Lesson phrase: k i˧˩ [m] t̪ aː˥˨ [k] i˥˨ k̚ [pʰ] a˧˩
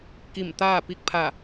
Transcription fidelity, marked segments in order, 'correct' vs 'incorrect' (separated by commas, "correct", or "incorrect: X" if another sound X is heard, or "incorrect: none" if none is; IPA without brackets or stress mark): correct, incorrect: p, correct